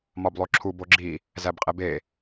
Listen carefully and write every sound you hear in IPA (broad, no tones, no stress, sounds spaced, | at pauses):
m ɒ b lˠ o ǁʰ u b o ɡ͡ǁ i | z æ b qʼ e b e